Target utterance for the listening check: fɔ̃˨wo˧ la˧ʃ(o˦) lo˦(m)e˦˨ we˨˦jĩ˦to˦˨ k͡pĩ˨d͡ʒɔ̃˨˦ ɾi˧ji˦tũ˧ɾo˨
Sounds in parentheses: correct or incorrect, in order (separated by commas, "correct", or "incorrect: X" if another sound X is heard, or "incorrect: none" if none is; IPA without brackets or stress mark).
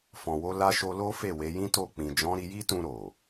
incorrect: o˧, incorrect: f